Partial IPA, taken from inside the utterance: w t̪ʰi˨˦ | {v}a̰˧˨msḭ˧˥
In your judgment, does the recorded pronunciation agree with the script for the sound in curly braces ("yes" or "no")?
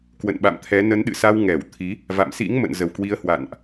yes